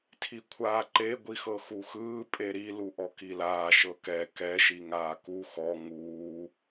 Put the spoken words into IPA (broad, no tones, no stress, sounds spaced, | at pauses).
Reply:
tʰ i kʷʰ aː ǃ e ɡʷ i x ɤ x u x ɯː pʼ e ɾ i l u ʔ ɔ k i l aː ʃ ɤ k ɛ k ɛ ʃ i ŋ aː k u x ɔ ŋ uː